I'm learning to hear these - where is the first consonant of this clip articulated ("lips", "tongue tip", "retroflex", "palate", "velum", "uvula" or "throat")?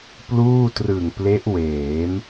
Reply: lips